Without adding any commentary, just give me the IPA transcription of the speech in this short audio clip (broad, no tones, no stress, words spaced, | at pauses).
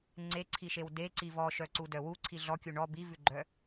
ŋ͡ǀeǀʰiʃew deǀi vɔʃœǀudœ wuǀʰi ɮɔkʲu ɳɔ bivʉɡ͡ǃœ